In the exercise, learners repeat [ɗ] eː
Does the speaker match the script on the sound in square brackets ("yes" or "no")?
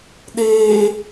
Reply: yes